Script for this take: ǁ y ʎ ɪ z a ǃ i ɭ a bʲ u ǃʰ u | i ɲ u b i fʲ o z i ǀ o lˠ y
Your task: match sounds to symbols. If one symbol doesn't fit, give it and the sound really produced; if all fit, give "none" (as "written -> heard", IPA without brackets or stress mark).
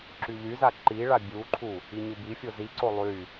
ɪ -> y